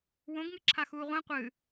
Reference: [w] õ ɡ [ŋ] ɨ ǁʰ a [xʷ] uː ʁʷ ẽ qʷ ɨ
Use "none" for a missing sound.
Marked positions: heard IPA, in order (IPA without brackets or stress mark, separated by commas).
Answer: w, ŋ, x